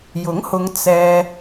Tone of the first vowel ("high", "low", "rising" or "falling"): rising